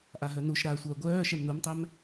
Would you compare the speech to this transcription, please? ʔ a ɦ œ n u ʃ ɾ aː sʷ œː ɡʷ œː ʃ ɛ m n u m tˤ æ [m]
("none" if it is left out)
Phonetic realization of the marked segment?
m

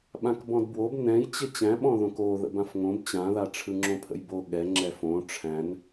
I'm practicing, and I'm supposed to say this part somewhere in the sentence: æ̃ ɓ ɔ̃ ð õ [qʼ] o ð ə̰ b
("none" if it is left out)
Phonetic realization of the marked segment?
k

